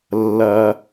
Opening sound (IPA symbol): lː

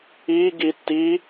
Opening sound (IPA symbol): i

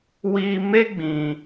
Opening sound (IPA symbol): w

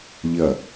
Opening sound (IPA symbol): ʎ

